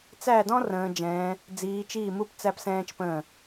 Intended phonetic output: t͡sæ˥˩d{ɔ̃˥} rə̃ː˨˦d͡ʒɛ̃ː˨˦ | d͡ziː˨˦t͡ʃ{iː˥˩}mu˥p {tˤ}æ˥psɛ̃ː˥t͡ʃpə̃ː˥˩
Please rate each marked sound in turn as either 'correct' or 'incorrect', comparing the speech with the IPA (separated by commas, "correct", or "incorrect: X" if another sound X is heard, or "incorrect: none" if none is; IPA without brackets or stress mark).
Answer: correct, correct, incorrect: t͡s